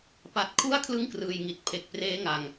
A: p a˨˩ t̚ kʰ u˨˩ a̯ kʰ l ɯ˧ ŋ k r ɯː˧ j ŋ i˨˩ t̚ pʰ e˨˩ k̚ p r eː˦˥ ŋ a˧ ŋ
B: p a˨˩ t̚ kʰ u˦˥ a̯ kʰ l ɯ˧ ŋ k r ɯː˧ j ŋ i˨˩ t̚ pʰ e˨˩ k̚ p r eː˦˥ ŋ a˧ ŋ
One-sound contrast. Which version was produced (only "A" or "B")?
B